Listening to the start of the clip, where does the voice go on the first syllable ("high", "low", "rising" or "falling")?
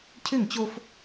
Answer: falling